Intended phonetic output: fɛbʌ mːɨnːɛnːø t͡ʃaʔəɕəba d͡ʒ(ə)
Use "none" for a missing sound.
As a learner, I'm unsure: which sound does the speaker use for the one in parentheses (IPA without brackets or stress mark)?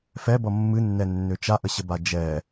ɛ